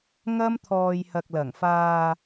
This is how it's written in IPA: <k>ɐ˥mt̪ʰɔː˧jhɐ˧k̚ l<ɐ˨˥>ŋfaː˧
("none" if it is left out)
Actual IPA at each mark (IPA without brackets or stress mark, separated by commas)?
ŋ, ɐ˨˩